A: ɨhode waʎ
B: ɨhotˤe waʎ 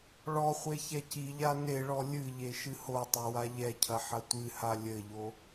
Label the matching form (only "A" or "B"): B